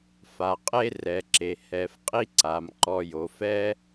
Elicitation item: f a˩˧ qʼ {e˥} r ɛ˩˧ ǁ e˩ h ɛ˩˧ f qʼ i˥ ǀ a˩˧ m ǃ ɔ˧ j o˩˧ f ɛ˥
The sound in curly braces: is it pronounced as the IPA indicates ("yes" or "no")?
yes